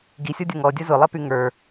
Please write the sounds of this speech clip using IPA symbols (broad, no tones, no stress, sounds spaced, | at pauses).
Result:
ɡ i sʲ ɔ dʲ ə ŋ ɔ dʲ ə z ʊ lˠ e p y ŋ ə˞